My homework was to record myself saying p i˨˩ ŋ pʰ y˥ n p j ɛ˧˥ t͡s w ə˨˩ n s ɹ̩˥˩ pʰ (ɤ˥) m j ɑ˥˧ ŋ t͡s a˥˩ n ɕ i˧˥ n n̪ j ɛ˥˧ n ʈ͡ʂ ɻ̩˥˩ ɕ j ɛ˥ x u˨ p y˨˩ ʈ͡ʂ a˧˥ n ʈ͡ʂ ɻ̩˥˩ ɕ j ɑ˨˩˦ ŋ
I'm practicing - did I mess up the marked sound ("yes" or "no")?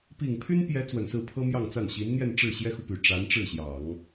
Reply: no